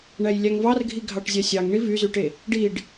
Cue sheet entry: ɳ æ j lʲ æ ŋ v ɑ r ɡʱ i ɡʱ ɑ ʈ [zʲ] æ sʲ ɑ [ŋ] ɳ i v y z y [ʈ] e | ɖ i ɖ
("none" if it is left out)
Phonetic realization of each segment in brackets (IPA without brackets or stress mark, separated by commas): zʲ, ŋ, ʈ